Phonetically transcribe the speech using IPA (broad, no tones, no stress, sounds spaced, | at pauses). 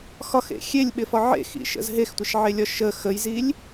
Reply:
x ɒ x ḛ xʲ e lʲ ɓ ɪ f ɒ ʕ ḛ x ḭ ʃ ə̰ z ɦ e x tʷ ɪ ʃ ʕ e lʲ ɒ ʃ ə x ə j z i lʲ